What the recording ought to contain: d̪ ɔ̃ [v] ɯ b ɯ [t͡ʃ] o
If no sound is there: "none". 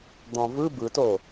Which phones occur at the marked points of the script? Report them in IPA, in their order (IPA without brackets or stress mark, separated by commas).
v, t